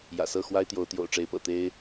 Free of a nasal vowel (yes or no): yes